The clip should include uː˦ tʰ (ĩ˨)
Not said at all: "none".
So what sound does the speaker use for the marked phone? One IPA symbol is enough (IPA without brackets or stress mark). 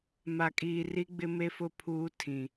ĩ˨